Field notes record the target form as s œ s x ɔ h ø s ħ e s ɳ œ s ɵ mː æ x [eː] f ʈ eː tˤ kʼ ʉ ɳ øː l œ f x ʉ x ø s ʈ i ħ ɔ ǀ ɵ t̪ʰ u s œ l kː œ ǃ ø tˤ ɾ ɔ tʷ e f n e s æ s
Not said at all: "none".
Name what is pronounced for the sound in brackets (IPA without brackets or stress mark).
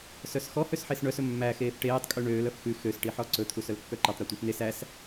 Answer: eː